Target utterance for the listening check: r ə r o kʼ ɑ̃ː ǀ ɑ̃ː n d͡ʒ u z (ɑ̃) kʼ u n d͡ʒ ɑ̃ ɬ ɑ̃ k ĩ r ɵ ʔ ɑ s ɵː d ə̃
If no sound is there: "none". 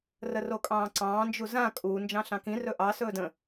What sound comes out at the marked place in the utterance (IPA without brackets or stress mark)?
ã